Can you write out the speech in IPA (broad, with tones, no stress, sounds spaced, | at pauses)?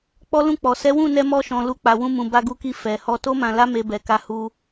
k͡p ɔ˦ l ũ˦˨ k͡p ɔ˨ s ɛ˨˦ w ũ˦˨ n ɛ˧ m ɔ˧ ʃ ɔ̃˨ l u˧ k͡p a˨ w ũ˧ m ũ˨ b a˧ ɡ u˧ k i˧ f ɛ˨ h ɔ˧ t o˦ m ã˧ l a˦ m e˧ b ɛ˨ k a˧ h u˧